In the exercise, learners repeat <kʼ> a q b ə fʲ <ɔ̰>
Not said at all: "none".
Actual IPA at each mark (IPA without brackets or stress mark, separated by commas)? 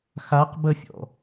x, ɔ̰